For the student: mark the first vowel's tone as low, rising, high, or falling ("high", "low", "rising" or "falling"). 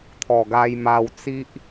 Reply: low